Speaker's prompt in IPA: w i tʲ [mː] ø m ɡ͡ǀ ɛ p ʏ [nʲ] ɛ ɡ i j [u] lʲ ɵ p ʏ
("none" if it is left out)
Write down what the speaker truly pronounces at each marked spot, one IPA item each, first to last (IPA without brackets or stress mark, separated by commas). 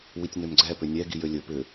n, nʲ, ø